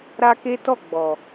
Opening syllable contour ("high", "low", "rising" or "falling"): high